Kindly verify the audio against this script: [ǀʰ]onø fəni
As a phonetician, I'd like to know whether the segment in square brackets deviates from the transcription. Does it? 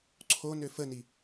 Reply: no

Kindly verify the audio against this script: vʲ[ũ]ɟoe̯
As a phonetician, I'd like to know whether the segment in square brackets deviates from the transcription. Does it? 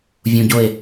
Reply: no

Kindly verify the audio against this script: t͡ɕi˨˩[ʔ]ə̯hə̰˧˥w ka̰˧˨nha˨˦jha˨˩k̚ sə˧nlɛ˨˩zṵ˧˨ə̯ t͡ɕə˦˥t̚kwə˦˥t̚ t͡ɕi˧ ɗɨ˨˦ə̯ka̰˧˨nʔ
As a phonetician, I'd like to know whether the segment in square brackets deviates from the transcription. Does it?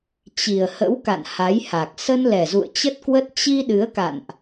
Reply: yes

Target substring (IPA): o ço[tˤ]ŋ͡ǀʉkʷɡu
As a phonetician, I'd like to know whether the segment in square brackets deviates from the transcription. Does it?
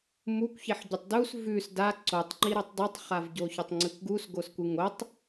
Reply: no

